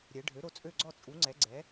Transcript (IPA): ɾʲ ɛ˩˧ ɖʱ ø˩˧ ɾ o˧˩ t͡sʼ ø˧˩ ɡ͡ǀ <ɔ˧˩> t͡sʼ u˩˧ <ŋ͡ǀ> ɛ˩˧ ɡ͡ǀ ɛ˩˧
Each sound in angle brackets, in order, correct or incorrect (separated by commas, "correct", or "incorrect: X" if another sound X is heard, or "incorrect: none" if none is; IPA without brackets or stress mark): correct, correct